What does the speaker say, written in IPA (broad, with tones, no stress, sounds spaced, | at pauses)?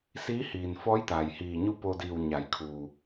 s iː˧˥ h iː˩ n f ɔː˧˥ j t̪ aː˩ j h iː˧˩ ɲ u˥˨ p o˧ d iː˧˩ w ɲ a˩˧ j kʰ uː˩